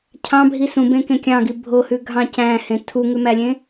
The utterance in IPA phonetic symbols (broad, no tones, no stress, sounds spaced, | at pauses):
cʰ ɑ̃ bʱ i s ũ b ẽ k ẽ kʲ ɑ̃ ɡ i bʱ o h ʉ ɡʱ ɑ̃ c æ̃ h ẽ tʰ u ŋ ʉ m æ lʲ ẽ